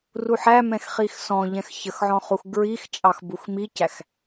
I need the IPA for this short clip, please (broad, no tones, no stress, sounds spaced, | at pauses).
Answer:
r u ħ æ m ɛ̃ x χ i x s ɔ̃ ʎ ɛ̃ x ç ə x ʕ ɔ̃ χ u x ɡ ɹ i x t͡ʃʼ ɑ x b u x m i c æ x